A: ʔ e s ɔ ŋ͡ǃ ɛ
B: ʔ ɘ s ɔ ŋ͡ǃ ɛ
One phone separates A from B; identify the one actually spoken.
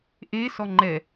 A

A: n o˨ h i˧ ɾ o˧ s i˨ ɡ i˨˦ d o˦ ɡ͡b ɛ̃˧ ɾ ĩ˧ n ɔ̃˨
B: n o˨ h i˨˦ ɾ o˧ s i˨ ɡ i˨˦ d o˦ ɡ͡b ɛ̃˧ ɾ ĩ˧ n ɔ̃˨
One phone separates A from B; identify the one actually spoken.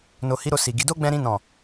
B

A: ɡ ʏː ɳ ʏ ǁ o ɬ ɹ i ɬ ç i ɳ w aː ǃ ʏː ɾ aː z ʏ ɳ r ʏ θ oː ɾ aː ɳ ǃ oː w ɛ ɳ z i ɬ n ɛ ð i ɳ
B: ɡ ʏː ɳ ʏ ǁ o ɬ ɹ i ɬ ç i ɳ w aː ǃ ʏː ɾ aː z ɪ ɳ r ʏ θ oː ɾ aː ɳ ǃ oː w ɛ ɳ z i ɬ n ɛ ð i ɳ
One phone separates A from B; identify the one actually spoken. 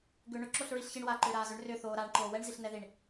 A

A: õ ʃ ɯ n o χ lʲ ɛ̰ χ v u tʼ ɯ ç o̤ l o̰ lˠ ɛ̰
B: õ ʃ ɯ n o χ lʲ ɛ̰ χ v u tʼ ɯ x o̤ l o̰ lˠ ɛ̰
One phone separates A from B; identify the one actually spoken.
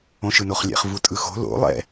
B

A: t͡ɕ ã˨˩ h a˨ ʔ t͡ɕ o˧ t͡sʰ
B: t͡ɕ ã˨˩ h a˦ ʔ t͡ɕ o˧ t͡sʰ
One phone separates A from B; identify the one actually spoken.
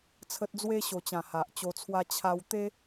A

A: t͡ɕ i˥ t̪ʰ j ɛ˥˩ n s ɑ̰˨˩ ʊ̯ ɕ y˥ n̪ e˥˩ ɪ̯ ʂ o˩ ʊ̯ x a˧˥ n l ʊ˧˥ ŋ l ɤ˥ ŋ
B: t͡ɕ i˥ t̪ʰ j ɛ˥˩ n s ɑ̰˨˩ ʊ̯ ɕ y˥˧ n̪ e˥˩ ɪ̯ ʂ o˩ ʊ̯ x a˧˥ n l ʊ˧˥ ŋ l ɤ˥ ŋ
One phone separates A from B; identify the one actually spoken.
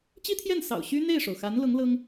A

